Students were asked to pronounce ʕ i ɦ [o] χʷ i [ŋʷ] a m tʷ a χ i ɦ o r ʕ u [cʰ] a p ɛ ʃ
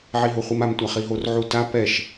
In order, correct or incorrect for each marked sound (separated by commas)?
correct, incorrect, incorrect